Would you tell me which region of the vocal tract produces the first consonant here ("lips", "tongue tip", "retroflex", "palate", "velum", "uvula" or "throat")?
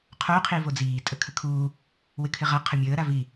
uvula